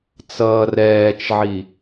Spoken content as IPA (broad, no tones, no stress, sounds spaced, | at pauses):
t͡s ʌː r ɛː t͡ʃ ʕ i